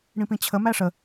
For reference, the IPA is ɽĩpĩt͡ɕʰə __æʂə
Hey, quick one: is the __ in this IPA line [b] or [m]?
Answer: m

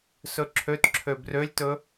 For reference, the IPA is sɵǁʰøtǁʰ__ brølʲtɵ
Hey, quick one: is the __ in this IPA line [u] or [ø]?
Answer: ø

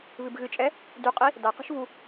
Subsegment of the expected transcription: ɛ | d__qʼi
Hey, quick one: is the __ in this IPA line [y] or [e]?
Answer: y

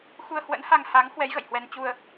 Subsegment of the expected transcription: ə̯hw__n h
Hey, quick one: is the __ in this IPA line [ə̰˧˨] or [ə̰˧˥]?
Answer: ə̰˧˥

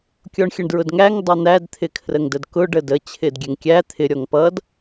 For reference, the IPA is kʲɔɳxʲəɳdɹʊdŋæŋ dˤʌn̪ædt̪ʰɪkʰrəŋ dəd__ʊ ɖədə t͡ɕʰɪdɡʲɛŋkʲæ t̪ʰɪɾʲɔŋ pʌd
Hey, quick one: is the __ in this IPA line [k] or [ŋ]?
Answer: k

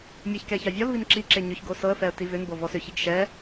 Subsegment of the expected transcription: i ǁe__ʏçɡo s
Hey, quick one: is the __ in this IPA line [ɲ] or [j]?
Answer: ɲ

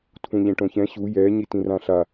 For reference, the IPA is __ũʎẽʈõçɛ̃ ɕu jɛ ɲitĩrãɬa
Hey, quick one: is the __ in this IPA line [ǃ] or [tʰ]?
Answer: tʰ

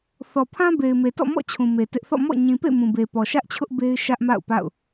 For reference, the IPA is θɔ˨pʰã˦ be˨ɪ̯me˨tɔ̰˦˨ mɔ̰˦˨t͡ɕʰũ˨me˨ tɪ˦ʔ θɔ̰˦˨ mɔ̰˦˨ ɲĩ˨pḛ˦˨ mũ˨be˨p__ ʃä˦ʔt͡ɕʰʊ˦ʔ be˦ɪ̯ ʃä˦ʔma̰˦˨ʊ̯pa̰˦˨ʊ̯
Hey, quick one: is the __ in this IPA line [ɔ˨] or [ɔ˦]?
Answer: ɔ˨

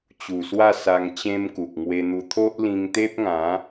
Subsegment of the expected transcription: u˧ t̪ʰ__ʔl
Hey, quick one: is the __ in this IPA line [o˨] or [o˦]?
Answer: o˦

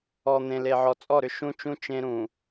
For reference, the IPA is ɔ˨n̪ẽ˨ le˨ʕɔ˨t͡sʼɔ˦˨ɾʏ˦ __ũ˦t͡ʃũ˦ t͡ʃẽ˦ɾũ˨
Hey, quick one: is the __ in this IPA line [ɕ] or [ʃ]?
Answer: ʃ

